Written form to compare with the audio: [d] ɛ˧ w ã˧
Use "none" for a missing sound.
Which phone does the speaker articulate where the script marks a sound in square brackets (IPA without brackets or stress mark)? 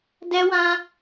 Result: d